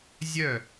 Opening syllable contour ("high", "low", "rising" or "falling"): falling